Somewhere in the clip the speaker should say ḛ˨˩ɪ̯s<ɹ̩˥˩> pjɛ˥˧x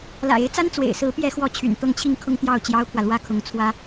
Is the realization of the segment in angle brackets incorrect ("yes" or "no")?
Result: yes